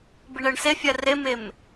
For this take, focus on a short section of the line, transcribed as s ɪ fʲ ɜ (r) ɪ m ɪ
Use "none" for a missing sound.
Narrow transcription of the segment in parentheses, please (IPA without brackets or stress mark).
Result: r